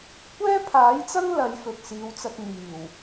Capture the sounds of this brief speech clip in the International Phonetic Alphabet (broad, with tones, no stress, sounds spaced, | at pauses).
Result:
kʷ ɛː˥ pʰ aː˨˥ j t͡s ɐ˥ ŋ l ɐ˨˧ j f ɵ˨ t̚ s iː˨˧ w t͡s ɐ˧ t̚ n̪ iː˨˩ w